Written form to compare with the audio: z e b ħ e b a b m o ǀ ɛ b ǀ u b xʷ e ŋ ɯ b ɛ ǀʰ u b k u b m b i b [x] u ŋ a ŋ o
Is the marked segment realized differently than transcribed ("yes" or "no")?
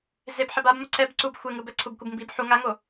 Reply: yes